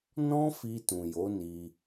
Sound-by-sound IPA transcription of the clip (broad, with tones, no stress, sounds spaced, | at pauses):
n ɔ̃˦ f i˧ t ũ˨ j o˨˦ n i˧